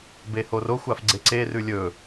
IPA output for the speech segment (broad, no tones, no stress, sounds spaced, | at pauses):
b e h o r o xʷ a f ɡ͡ǀ e ǀ e r ʉ lʲ ɵ